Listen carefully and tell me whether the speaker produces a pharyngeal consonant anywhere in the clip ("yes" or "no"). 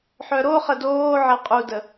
yes